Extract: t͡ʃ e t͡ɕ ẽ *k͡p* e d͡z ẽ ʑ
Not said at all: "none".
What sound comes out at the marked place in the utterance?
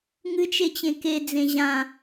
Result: k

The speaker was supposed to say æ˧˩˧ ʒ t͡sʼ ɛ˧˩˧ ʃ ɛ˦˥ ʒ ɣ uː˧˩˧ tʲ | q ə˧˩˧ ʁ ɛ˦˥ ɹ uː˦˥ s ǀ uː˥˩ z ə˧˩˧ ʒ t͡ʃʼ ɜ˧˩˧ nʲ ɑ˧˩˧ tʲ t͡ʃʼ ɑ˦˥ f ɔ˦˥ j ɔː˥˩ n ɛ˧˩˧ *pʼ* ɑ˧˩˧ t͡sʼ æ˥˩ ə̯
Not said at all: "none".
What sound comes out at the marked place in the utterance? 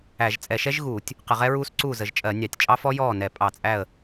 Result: pʼ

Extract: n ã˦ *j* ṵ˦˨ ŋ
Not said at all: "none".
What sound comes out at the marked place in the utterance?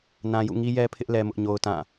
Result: j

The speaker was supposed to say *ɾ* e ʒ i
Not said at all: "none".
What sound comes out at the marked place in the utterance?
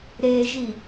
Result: ɾ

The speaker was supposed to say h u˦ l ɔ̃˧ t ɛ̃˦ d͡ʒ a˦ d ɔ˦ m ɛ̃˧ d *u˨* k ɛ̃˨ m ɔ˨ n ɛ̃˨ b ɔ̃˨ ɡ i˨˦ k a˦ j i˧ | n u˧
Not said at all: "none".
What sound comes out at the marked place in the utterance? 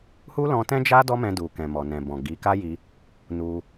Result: u˨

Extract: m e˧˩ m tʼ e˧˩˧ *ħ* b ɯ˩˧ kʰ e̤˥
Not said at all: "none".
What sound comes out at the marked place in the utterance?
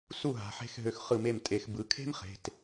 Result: x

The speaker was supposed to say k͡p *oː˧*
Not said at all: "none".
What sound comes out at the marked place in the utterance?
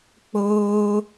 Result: oː˧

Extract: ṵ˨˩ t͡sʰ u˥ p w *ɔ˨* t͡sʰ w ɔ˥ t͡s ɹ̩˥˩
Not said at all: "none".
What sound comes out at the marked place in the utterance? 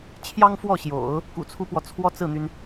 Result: ɔ˨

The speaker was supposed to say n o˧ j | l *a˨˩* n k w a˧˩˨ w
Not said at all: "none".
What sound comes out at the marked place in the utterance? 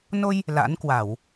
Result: a̰˧˥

